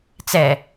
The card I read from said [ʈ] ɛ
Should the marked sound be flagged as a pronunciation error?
yes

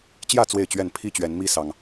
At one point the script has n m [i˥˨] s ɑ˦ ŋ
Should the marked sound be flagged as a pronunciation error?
yes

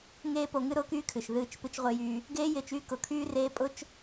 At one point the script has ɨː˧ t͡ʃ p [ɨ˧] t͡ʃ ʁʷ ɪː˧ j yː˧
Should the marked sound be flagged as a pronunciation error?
no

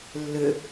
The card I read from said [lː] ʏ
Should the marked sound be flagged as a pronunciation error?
no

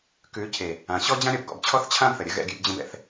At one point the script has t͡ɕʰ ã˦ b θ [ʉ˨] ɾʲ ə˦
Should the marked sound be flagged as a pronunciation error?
yes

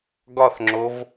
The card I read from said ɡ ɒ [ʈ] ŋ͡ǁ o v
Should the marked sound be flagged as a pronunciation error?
yes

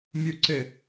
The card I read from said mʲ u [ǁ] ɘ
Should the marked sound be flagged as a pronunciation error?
yes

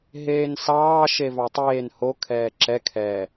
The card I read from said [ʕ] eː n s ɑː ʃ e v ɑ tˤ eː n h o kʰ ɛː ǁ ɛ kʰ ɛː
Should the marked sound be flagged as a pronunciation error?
yes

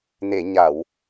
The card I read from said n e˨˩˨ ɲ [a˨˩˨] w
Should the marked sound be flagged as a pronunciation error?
no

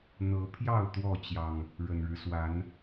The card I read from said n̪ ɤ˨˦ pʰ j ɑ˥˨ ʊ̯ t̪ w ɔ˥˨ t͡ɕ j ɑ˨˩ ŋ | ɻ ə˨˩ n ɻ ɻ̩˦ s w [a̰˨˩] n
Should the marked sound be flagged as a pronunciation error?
yes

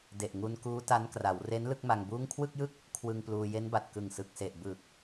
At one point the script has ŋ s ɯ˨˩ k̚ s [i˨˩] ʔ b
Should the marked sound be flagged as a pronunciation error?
yes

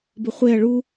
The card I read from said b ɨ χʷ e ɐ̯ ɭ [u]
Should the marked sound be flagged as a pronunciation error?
no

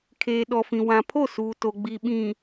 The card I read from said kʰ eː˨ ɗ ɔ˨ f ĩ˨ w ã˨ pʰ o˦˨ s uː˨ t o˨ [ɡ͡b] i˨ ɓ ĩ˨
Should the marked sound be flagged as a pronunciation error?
no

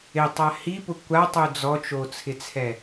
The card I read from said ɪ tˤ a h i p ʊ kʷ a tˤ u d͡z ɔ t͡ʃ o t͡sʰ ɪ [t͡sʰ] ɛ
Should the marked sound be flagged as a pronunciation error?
no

